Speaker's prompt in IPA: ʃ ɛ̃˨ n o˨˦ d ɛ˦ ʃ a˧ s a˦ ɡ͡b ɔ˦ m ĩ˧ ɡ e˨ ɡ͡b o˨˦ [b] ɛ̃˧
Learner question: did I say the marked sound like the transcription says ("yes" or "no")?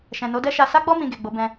yes